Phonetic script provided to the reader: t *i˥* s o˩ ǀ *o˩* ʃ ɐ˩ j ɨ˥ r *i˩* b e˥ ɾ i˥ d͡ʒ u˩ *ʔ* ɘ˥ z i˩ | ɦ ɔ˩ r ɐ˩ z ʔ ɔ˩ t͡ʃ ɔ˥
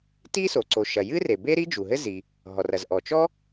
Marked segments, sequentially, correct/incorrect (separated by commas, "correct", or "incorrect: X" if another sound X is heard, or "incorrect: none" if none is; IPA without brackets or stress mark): correct, correct, incorrect: e˩, incorrect: ɦ